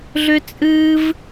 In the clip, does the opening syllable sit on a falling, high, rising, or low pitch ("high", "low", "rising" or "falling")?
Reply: high